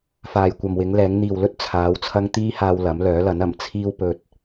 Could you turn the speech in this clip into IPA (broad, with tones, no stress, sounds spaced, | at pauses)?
f aː˨ j kʷ ɐ˨ m w ɪ˨˧ ŋ l ɛː˨˧ ŋ n̪ iː˨ w l ɵ˥ t̚ t͡sʰ aː˨˧ w t͡sʰ ɐ˥ ŋ t̪ iː˥ h aː˧ w l ɐ˨˥ m l œː˨˥ l ɐ˨˥ n ɐ˨˩ m t͡sʰ iː˧ w p ɵ˨ t̚